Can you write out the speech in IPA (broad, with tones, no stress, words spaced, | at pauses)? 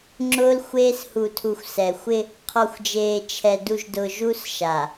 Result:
ŋ͡ǁʊː˦lxʷeː˦s hu˨tʰu˨xʷ sɛ˨xʷɪ˦ | qʰɔ˨xʷd͡ʒeː˨t͡ʃʰɛ˨ du˨ʒdʊː˨ ʒu˦sʃa˨